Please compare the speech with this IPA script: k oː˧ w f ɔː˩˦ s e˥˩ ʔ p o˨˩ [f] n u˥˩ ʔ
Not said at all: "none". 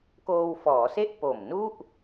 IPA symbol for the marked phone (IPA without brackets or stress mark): m